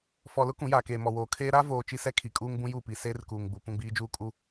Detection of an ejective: present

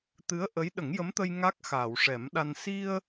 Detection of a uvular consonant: absent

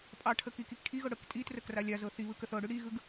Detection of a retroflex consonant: present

